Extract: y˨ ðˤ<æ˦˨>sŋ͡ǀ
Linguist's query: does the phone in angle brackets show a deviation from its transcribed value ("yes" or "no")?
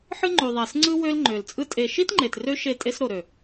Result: yes